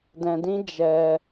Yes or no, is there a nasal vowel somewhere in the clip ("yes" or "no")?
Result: yes